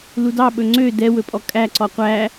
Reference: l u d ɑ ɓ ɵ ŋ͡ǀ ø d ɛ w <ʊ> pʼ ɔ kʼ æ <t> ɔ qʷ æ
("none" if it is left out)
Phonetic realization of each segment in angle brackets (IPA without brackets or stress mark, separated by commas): ɵ, ǀ